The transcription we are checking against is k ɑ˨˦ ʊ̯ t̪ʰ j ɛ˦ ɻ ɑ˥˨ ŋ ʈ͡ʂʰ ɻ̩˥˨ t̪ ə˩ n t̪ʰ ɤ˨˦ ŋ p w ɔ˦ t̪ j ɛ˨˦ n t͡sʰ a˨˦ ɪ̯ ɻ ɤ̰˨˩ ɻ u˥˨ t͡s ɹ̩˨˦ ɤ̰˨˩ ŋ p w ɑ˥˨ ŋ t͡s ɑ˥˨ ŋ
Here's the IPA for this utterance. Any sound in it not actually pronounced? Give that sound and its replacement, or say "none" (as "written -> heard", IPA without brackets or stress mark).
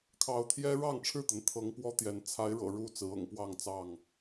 k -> kʰ